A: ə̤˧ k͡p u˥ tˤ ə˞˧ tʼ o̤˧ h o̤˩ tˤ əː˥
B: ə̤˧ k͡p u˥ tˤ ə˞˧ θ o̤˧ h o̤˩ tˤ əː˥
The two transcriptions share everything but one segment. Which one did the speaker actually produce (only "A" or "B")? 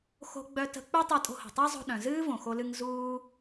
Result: A